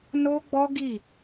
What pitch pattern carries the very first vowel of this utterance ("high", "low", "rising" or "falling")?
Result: high